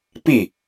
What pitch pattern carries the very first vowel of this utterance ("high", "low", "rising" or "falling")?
falling